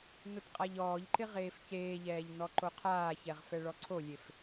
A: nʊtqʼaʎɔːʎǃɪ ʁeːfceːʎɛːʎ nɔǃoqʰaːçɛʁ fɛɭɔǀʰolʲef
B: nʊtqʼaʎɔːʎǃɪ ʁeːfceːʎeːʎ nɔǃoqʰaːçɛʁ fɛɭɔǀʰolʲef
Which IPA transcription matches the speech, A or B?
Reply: A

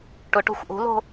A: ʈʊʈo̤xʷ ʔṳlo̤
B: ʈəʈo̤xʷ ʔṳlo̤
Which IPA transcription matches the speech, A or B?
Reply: A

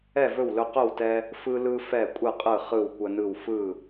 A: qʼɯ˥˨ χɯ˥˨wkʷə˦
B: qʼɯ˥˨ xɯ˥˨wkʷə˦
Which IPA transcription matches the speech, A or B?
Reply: A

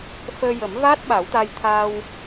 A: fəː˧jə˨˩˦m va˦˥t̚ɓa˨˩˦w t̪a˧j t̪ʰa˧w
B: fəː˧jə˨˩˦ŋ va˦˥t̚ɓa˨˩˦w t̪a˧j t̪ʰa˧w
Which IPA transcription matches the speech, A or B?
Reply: A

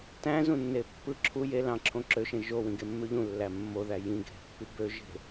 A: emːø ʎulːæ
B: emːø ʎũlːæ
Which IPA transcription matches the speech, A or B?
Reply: B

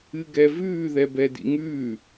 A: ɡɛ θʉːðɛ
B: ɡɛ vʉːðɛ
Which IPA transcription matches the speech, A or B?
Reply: B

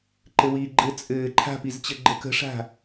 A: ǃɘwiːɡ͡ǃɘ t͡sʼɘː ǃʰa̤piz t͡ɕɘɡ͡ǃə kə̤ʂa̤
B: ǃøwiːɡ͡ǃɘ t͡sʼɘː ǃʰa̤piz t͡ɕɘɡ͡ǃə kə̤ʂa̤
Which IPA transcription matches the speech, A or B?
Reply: A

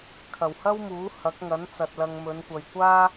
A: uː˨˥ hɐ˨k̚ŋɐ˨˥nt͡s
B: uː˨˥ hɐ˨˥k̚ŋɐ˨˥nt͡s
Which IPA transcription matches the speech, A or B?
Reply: B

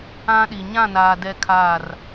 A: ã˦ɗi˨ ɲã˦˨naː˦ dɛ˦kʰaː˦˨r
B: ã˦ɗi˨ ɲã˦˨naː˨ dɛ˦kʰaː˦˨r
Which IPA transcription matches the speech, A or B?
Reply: B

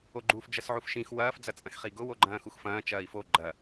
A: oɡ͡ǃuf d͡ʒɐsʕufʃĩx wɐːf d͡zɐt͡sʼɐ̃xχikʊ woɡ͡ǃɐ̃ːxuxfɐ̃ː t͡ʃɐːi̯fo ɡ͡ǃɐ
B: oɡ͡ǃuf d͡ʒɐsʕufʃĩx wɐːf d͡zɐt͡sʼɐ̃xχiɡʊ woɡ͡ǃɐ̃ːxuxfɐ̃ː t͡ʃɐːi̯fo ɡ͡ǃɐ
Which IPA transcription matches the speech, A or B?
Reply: B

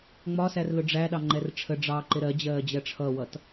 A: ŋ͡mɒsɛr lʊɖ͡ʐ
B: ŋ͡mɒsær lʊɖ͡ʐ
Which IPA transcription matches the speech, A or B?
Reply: B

